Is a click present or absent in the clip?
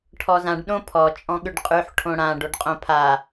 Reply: absent